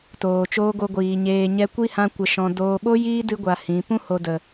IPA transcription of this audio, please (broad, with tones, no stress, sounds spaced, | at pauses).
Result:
t oː˨ t͡ʃ oː˧ ɡ o˧ ɡʷ iː˨ ɲ eː˨ ɲ ɛ˧ kʷ i˦ h ã˧ kʷ ə˨ ʃ ɔ̃˨ d oː˨ ɓ o˦ j iː˦ d ɨ˧ ɡʷ a˨ h ĩ˨˦ p ũ˦ h o˨ d ə˨